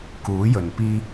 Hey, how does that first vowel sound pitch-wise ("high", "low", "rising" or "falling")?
rising